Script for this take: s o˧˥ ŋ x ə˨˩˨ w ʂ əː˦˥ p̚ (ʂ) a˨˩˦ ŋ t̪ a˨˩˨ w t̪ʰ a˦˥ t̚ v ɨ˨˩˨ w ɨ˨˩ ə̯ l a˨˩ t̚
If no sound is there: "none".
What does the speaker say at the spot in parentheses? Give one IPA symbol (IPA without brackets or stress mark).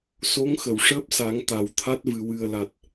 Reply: s